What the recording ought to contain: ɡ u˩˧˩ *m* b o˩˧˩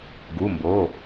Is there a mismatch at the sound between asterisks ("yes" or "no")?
no